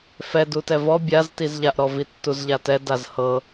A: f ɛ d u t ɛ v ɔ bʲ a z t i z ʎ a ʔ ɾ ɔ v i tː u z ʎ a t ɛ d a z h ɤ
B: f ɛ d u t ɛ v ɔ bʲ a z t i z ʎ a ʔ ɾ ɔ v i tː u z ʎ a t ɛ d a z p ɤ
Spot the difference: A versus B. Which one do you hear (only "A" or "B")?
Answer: A